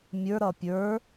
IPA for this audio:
mʲ ə˞ ɾ ʌ pʲ ə˞

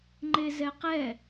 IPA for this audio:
ŋ͡ǃ e z ɛ q ɛ

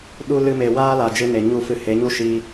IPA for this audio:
ɗ u˧ l ɨ˧ m e˨ w aː˦ l a˨ d͡ʒ ɨ˧ n e˨ ɲ u˦˨ f ɨ˧ h e˨˦ ɲ u˦ ʃ i˧

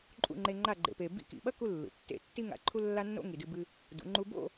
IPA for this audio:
ǃʼ ṵ˦˨ ŋ͡ǃ e˧ ŋ͡ǃ a˦˨ ɡ͡ǃ ḛ˨ p e˨ b ḭ˧ k ḭ˨ ɓ ɐ˦ k u˦ lː ṵ˨ tː ḛ˦˨ tː i˦ ŋ a̰˧ ǃʰ u˦ lː a˦ nː o̰˦ ŋ i˨ d ɨ˧ b ɨ˧ | d ṵ˨˦ ŋ͡ǃ u˦ b o̰˦˨

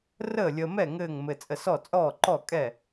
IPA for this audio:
r əː˥˨ lʲ əː˧ m ɛ˥˨ ŋ ɘː˥˨ ŋ m ɘ˧ t͡sʼ ə˧ s ɔ˥˨ t͡sʼ ɔː˥˨ ǃ ɔ˥˨ kʼ ɛ˥˨

